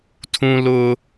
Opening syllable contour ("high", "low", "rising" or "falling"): high